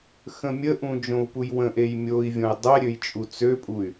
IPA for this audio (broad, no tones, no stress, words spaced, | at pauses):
xə̃mʲəʔũ d͡ʒõu̯pujwə̃ʔej mʲoi̯vʲõj dˤɛɾʲøj t͡ʃʼut͡søpʼuy̯